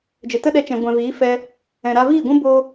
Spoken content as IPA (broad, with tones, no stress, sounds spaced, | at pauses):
d͡ʒ ə˨ t ə˦ ɗ ɛ˧ t͡ʃ ɛ̃˨ ɡʷ ɛ̃˨ v iː˨˦ f ɛ˧ | ɛ̃˨ ɾ a˧ v iː˦˨ ɡʷ ũ˦ b o˦